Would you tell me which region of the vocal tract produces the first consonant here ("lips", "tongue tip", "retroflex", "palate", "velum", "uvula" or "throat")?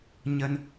palate